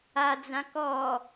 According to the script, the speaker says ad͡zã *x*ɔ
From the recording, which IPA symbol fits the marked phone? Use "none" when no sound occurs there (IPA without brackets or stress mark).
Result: k